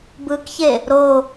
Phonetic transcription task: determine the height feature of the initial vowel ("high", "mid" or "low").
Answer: high